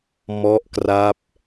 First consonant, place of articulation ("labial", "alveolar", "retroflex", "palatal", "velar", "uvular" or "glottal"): labial